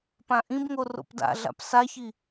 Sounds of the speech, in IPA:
p ã ʔ ĩ b ŋ o r o̰ p d a̰ ɮ a̰ p s a ç i

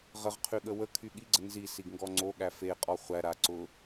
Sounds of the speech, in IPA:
ʁ ə ʁ qʰ y ɠ ə w ə kʰ y ɠ i ɡ͡ǀ ə n z i s i ɡ ŋ ɡ ɔ ŋ͡ǀ o ɠ æ f e qʼ ɔ χʷ æ ɾ a ǀ ʊ

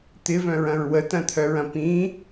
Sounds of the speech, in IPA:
t̪ ɪ v œ̃ ɹ ɐ̃ ɹ w ə t ɐ̃ t̪ʰ œ ɹ ɐ̃ p ĩ

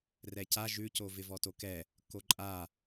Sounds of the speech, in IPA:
r ɛ c a ʒ ʉ c o v ɪ v ɔ t o k ɛ | k o ǃʼ a

